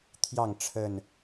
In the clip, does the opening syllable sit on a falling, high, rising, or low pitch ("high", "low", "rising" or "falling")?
falling